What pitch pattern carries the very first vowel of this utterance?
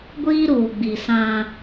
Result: high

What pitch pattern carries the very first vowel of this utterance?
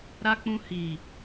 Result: high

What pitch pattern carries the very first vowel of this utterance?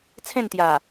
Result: falling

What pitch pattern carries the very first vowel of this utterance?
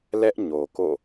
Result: high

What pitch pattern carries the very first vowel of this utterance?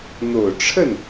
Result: low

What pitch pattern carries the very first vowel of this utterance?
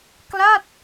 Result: falling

